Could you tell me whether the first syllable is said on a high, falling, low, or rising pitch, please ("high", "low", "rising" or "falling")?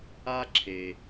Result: high